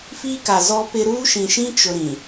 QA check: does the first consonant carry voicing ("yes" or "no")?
no